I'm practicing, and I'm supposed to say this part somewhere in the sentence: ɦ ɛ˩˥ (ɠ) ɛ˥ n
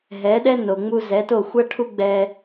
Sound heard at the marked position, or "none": ɗ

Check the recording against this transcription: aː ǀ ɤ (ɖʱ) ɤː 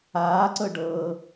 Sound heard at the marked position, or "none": ɖ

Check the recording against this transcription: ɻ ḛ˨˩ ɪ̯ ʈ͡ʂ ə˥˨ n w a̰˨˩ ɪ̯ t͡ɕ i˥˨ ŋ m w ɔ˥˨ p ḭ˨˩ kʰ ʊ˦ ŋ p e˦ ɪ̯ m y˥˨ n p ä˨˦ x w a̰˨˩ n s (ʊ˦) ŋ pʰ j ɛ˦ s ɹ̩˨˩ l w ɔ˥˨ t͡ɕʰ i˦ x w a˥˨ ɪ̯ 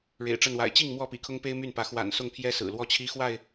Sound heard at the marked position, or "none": ʊ˥˨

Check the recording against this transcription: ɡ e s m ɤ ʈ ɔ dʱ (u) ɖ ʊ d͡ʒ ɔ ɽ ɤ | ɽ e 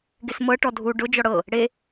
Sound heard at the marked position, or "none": u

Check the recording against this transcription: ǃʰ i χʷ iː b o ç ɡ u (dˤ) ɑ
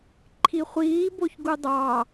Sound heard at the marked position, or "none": dˤ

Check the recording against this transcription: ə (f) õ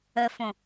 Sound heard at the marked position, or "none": f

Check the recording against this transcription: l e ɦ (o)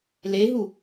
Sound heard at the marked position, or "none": u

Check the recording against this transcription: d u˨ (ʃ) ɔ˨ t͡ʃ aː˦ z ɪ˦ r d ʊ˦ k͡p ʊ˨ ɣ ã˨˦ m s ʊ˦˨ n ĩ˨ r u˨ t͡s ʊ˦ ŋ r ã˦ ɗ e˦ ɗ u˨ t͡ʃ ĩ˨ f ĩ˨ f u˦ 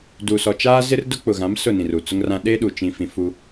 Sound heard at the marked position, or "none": s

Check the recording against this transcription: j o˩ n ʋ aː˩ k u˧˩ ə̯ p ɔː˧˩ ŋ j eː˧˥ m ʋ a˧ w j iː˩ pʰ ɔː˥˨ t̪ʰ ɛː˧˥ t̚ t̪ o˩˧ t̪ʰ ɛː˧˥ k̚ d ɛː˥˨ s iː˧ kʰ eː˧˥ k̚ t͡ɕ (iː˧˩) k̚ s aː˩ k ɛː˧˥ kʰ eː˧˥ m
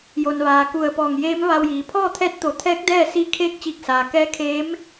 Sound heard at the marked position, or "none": iː˧˩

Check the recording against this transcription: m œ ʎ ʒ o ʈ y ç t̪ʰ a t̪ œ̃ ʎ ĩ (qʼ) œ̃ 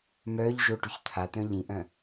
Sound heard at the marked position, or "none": ʔ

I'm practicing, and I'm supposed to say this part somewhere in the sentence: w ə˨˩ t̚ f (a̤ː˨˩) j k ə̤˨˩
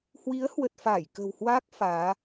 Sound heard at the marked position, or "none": aː˧˩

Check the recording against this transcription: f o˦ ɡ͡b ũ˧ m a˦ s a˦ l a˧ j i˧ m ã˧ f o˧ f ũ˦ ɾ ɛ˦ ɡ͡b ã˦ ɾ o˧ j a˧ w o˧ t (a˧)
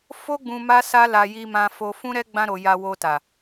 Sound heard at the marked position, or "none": a˨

